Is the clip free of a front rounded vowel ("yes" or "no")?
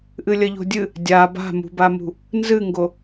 yes